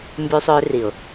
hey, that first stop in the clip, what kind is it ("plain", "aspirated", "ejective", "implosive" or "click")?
plain